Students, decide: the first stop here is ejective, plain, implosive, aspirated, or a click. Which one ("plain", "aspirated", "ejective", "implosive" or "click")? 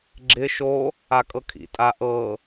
click